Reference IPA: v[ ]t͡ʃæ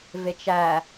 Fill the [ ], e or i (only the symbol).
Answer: e